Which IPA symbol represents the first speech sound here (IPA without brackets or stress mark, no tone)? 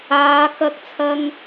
aː